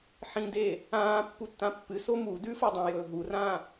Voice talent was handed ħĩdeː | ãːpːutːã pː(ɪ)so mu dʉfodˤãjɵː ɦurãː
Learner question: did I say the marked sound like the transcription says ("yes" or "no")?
no